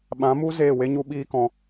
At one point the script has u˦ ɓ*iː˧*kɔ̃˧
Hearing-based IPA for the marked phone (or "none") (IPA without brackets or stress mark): iː˦